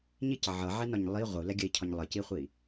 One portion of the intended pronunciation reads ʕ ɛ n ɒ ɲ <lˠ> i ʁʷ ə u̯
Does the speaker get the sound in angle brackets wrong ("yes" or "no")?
no